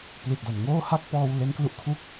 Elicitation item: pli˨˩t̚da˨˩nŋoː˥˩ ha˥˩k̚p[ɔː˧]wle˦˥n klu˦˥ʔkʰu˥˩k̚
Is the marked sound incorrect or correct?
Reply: correct